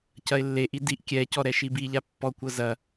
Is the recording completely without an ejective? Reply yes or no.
yes